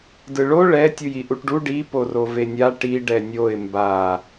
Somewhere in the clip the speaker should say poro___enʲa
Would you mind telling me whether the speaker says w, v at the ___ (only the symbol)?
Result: v